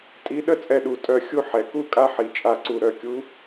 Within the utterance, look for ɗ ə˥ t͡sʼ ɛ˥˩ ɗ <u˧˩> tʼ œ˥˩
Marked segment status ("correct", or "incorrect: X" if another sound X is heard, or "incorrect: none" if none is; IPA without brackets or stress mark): correct